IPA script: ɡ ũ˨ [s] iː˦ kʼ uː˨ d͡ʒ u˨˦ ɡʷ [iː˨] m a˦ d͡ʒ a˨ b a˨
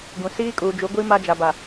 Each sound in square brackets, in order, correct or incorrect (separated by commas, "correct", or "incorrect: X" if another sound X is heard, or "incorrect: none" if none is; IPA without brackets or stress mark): correct, incorrect: iː˦